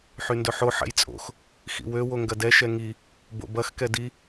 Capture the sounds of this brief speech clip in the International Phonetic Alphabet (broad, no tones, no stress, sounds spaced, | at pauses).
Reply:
ħ y n d ɵ ħ o ħ ɛ̰ j t͡sʼ o̰ x | x ḭ w ø w o ŋ ɡ ɐ d ɛ ʃ ɛ ŋ i | b o̰ b ɐ x k ɛ d i